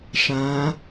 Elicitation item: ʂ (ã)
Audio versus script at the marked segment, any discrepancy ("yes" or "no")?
no